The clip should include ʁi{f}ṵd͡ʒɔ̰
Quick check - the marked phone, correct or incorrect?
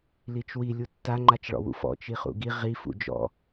correct